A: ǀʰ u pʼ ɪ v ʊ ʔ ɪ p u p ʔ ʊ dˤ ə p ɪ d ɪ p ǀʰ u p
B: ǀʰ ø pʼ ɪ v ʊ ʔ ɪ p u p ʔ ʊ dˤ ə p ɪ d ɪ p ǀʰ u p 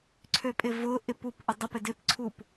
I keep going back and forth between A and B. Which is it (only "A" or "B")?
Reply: B